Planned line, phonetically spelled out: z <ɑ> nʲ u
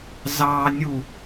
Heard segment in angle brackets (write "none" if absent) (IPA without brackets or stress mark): ɑ